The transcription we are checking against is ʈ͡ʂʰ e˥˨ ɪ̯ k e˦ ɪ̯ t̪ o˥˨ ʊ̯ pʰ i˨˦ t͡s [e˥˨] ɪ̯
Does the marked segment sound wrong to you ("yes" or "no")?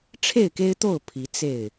no